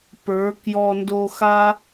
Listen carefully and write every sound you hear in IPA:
p ə˞˨˦ k j ɔ˧ n d o˧ x a˦

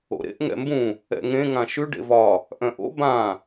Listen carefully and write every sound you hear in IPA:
o̰ ɾ ḛ ʔ ŋ ɛ̰ m b ũ | ɛ̰ ŋ ẽ ŋ ã ʃ ʉ ɖ ḛ v ɒ | ʔ œ̃ ʔ o̰ b ã

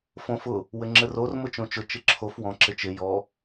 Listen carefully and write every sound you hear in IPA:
f õ f ʊ | w ɘ ŋ͡ǁ ɘ r o r m ʊ t͡ʃ õ t͡ʃ ʊ t͡ʃ ɪ ǁʰ o f w ɔ̃ ǁ ɪ t͡ʃ ɪ j ɔ

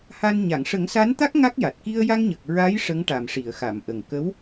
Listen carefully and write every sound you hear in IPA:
h a˧ n ɲ a˨˩˨ ŋ ʂ ə˨˩˦ ŋ s a˧˥ n t̪ a˦˥ k̚ ŋ a˦˥ k̚ j a˨˩ t̚ k i˧ ə̯ j a˧ ŋ ɲ ə˨˩ k̚ ɹ a˧˥ j ʂ ə˧˥ ŋ ʈ a˨˩ m ʂ i˨˩˨ ə̯ x a˨˩˨ m ʔ ə˨˩ ŋ k ə˧˥ w

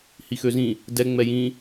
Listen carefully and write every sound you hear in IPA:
h i x ø z ĩ | d ɛ ŋ͡m ɛ j ĩ

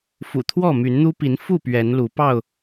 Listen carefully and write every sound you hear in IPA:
f ṵ˨˩ t̪ʰ w ɔ˥˨ m y˨˦ n n̪ u˦ p i˨˦ n f u˥˨ p ɥ ɛ˨˦ n l u˨˦ p ɑ˥˨ ʊ̯

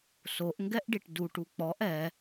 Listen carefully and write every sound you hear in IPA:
s o ʔ ŋ ɡ ɛ ʔ ɖ i ʈ d u ʈ u k͡p ɔ ʔ ɛ

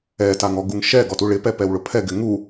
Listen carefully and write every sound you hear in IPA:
ɛ t a ŋ ɔ ɡ u ŋ ʃ ɛ ɡ ɔ t u ɭ ɪ p ɛ p ɛ w ɭ ʊ pʰ ɛ ɡ ɪ ŋ u

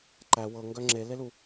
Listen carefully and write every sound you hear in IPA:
ǃ æ w ɤ ŋ ɡ œ ŋ͡ǁ e l e l u

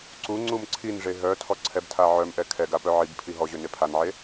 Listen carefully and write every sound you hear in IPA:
ǀ u ŋ͡ǀ u m ǀʰ i n ʐ e ɦ œ tʰ ɔ ǀʰ ɛ b tʰ a ʕ œ m ʔ ɛ kʰ ɛ ɡ a p œ ʕ i b pʰ i ɦ ɔ ʑ ø n e pʰ a n ʕ e

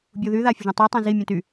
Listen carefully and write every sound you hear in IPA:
bʲ u ð y ð a fʲ ə ʒ ũ tˤ u tˤ ẽ z i mʲ ũ t y

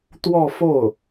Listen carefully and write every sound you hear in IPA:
t̪ w ɔ˥˧ f o˥˩ ʊ̯

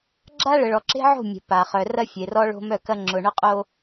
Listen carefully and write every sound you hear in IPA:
ɡ͡ǁ a˦ ɭ ə˨ ɭ ɔ˨ ǁ e̤˦ ʕ o̤˦˨ mʲ ə̤˨ p a˨ χ œ˨ r ɐ˦ fʲ e˨ r ɔ˦ ɭ o̤˦ m œ˦˨ k ɐ˦ ŋ͡ǁ ʊ˨ ɳ ʊ˦ qʼ o˦

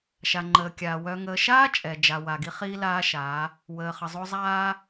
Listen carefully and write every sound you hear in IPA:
ʃ a˨ ŋ͡ǃ əː˨ kʲ aː˨ w œ˨ ŋ əː˨ ʃ aː˦ t͡ʃʼ ɛ˨ d͡ʒ a˨ w a˨ ɡ i˦ χ iː˦ l aː˦ ʃ aː˨˦ | w əː˨ χ ə˨ zˤ o˦ zˤ aː˦

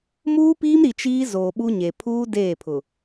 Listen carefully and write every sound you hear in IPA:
m uː˦ p iː˦ m ɾ i˨ t͡ʃ iː˦ z oː˨ ɓ u˦ ɲ e˨ pʰ uː˦ d eː˦˨ pʰ ʊ˨

